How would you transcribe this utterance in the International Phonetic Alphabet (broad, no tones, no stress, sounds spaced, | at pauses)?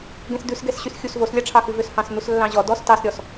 ɡ ɛ̃ s d ʉ s ɡ ɛ s ɕ y s xʲ u s v o s lʲ ɑ ʈ͡ʂʰ ɑ x ʉ v ø s h ɑ̃ s n̪ u s lː ɑ̃ ʑ ɔ d ɔ s t ɑ s ɾʲ ɔ s